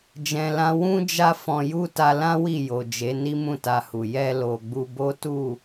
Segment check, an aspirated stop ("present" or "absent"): absent